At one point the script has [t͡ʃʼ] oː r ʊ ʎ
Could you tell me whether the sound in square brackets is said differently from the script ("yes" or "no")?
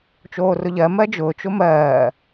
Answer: yes